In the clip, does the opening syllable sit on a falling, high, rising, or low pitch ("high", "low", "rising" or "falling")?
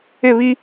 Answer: falling